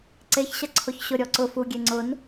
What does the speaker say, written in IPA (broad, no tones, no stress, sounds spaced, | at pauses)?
ǀ e ç ɕ ɐ ǀʰ o ç ɕ ʊ ɾʲ ɔ ǀ ʊ f u ɡʲ e ŋ͡ǀ ʊ n